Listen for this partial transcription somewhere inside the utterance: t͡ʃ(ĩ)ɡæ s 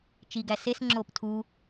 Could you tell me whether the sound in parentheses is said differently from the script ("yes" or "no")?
yes